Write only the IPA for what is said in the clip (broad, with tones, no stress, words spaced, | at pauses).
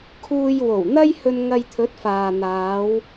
kʰuː˧jwo˨˩wn̪ɐ˥jhɵ˧n ŋɐ˧jt̪ʰɵ˨˥t̚faː˨ n̪aː˨˧w